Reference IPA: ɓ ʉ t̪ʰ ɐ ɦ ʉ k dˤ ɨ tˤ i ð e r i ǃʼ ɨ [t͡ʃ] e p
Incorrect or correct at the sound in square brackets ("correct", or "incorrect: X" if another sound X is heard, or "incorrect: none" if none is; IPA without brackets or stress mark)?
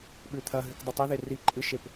incorrect: ʃ